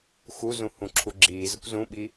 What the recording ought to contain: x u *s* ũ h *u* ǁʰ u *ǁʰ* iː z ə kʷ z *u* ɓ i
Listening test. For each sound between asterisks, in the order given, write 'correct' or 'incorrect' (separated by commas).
incorrect, incorrect, incorrect, incorrect